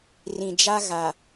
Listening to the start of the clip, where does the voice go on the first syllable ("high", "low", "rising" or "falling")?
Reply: low